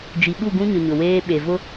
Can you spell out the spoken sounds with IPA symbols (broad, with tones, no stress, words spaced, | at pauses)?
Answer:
d͡ʒi˨ɓu˦˨ɡũ˦ɲʊ˨ ɲʊ˨weː˦ ɓe˨vʊ˦